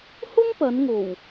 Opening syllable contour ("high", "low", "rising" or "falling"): high